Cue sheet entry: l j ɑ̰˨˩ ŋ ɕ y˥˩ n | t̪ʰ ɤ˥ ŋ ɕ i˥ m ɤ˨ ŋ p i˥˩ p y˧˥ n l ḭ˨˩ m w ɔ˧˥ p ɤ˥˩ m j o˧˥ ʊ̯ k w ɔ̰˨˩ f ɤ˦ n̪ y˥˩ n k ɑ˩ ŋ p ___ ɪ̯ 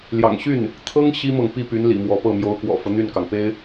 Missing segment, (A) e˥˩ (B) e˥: B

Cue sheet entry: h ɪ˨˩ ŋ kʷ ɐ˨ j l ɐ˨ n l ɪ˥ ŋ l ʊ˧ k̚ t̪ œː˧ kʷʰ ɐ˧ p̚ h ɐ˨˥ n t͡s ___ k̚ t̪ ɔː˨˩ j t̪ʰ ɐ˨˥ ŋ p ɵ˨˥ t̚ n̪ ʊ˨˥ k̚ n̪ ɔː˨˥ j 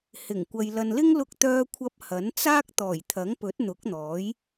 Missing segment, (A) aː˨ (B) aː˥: B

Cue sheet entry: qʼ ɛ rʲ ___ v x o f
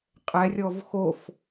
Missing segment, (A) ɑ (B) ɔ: B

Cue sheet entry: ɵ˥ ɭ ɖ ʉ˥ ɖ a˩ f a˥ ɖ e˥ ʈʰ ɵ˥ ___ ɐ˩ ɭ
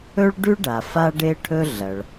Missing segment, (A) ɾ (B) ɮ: B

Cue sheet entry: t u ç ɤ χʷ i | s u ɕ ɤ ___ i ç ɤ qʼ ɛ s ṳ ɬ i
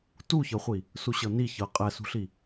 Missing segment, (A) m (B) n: B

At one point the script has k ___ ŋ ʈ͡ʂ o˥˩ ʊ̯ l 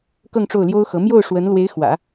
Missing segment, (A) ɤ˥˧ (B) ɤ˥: A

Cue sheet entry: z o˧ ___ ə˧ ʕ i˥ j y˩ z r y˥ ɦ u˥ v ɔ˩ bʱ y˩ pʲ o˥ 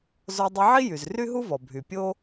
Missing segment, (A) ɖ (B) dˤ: B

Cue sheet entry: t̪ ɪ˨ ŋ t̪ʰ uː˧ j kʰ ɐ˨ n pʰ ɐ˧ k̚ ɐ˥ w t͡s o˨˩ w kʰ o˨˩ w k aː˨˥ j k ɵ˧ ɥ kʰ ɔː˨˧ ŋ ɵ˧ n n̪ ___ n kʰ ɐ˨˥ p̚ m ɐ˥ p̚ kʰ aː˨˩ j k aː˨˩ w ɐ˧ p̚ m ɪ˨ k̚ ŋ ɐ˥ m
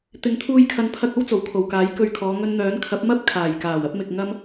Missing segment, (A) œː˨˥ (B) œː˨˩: A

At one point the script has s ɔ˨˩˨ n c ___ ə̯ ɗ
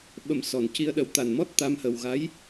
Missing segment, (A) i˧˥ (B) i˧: B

